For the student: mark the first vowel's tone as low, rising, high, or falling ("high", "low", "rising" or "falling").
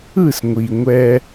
falling